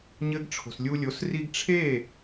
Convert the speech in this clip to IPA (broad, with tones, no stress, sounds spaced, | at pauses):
ɲ ɘ˦ ɡ ʈ͡ʂʰ o̤˨ s lʲ u˧ lʲ o˨˦ s r i˧ ɡ ʈ͡ʂʰ e˦˨